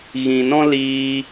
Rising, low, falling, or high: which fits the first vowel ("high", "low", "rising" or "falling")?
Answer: low